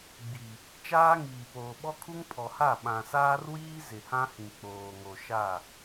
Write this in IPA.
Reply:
ɡ͡b i˨ | t͡ʃ aː˦ ŋ iː˨ p oː˨ ɓ ɔ˦ kʰ u˦ ŋ pʰ ɔ˨ h a˦˨ ɓ ã˨ s aː˦ r w iː˦ z ɪ˨ h ã˦ h ĩ˨ k͡p oː˨ ŋ o˨ ʃ a˦˨

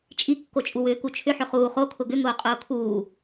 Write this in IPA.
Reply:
t͡ʃʼ i kː o t͡ʃʼ u w ʏː k u t͡ʃʰ ʏ ħ ʏ χ uː χ o kʰ ʊ ɡ ʏ ŋ ʊː qʼ ʊː kʰ uː

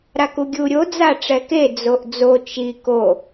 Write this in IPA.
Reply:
ɾ a k u ɡʲ u ɾʲ o d͡z a ʈ͡ʂ ɛ k e d͡z o ʔ d͡z o t͡ʃ i k o

